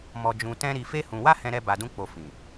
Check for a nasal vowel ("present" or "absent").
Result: present